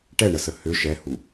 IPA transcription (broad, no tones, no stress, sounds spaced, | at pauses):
ʈ ɛ ɳ ə s ə h ʏ ʃ ɛ h u